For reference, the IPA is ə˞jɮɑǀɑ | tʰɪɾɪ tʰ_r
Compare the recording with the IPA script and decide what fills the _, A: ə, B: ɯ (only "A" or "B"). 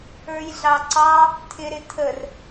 A